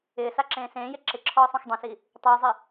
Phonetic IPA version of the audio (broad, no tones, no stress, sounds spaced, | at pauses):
ɪː s a ǁ ẽː s ẽː j e ǁ ɪ ǁʰ ɔː sˤ ũ x dˤ ẽ s i | tˤ u j zˤ ɪ